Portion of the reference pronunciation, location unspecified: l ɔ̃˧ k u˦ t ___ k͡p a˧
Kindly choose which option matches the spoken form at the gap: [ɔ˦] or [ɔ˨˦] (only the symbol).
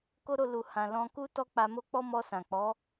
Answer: ɔ˦